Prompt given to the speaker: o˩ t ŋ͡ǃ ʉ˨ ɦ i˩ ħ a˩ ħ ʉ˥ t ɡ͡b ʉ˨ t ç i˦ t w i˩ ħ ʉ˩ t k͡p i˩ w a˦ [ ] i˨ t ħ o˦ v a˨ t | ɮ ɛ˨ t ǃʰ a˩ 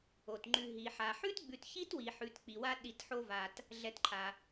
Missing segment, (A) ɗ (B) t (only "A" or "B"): A